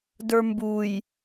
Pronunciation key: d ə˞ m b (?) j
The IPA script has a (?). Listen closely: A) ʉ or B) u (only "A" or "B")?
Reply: B